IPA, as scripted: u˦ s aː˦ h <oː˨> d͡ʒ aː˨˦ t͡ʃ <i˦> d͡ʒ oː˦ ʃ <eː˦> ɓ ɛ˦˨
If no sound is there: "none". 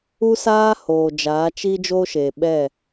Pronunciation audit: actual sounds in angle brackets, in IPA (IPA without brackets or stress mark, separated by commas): oː˨, i˦, eː˨